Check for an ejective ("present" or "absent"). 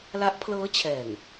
absent